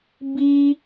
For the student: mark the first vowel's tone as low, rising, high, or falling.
high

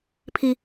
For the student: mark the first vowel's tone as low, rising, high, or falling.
high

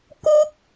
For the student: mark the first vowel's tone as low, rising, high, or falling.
high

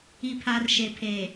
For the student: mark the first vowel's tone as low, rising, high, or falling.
low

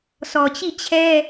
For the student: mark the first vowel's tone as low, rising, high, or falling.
low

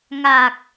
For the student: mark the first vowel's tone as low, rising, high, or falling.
low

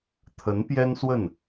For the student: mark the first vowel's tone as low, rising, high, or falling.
rising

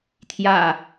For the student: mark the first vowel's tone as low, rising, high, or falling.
low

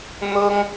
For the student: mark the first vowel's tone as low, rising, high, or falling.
high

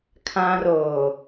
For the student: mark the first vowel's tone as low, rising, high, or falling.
high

